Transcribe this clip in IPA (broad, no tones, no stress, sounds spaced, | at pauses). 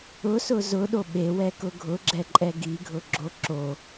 ʊ s ʊ z ʊ ɗ o ɓ e w ɛ k ʊ ɡʱ ʊ ɡ͡ǁ ɛ ǃʼ ɛ ɡ i ɡʱ ʊ ɡ͡ǁ o ǁ o